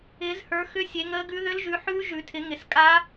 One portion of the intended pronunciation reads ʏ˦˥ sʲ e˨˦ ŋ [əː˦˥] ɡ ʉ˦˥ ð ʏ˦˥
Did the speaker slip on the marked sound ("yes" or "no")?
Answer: no